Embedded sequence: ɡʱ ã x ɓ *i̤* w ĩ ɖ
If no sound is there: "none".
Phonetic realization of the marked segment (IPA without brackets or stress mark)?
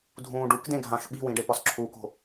i̤